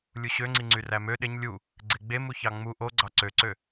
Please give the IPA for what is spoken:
lʲ u ɕ ø ŋ͡ǀ i ŋ͡ǀ y r æ m ø ɗ e ɲ lʲ u | ɡ͡ǀ e ɡ͡b e m u ç ɑ ŋ͡m u ʔ o ɡ͡ǀ ɑ ǀ ø ǀ ø

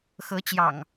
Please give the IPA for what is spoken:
x ɤ˨˦ t͡ɕ j ɑ̰˨˩ ŋ

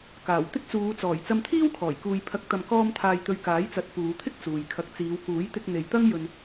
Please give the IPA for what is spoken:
k aː˨˩ w t̪ ɪ˥ k̚ t͡s uː˨˧ t͡s ɔː˨˩ j t͡s ɐ˧ m t̪ʰ iː˥ w kʰ ɔː˨˩ j k uː˨ j pʰ ɐ˨˥ k̚ t̪ ɐ˨ m k ɔː˧ m t̪ʰ aː˨ j t̪ ɵ˨ ɥ k aː˨˥ j t͡s ɐ˨˥ t̚ f uː˨˧ t̪ʰ ɪ˥ k̚ t͡s uː˨ j kʰ ɐ˧ k̚ t͡s iː˨˧ w k uː˨˥ j t̪ ɪ˧ k̚ n̪ e˨ j t̪ ɐ˥ ŋ j ɵ˧ n

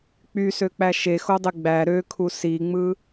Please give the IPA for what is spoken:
k͡p y s ø k͡p æ ʃ e x o dˤ e ɡ͡b æ ɾ ø kʰ u s i ŋ͡m ɯ

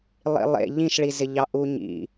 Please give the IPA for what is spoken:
lˠ ḭ lˠ ḛ ʎ ĩ ʃ ɭ i z ɪ ʎ ɑ ʔ u ɲ ḭ

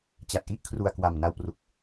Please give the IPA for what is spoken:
t͡ɕ a˨˩ t̚ ʔ i˥˩ ʔ kʰ r u˨˩ a̯ k w a˨˩ m n a˧ w p r u˨˩ k̚

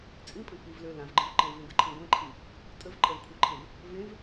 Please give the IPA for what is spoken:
t͡sʼ ĩ pʼ ə̃ k͡p i v l ø l ã v ɡ͡ǃ ẽ v ǃ ɛ̃ v ẽ ɡ ə ǃʰ ĩ ɡʷ ɛ̃ ǃʰ i | tʼ ə v ǃʼ ɛ v kʷʰ e ǃʰ ẽ v | v ẽ v

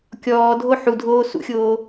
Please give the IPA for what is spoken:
kʲ ɔː dʱ o ħ u dʱ oː s ṵ xʲ oː

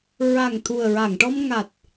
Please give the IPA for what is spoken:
ɹ a˨˩ ŋ t̪ʰ u˨˩ ə̯ ɹ a˨˩˨ ŋ ʈ ɔ˧ m ŋ a˨˩ t̚

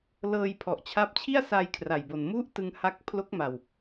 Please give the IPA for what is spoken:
l ɤː˧ j pʰ ɔ˨˩ ʔ t͡ɕʰ a˦˥ p̚ t͡ɕʰ i˥˩ a̯ s a˧ j kʰ r a˨˩ j b o˨˩ n m u˦˥ ʔ t ɯ˧ ŋ h a˦˥ k̚ pʰ l o˦˥ k̚ m a˨˩ w

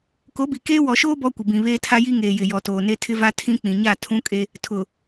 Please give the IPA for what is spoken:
k o˨˦ b i˨ k eː˦ w ɔ˨ ʃ oː˦ b ɔ˦ kʷ ɪ˨ b ĩ˨ β eː˦ tʰ a˦ j i˦ ŋ eː˨ j ɪ˨ j ɔ˨ t oː˨ n e˦ tʰ ɪ˦ v a˦ tʰ ĩ˦ k͡p ĩ˨ ɲ a˦˨ tʰ ũ˦ kʼ e˦ | tʰ ʊ˨

